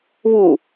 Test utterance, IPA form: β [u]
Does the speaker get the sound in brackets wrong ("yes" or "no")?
no